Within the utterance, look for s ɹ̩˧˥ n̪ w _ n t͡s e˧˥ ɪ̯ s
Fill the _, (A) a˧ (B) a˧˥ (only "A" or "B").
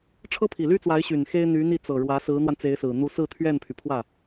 A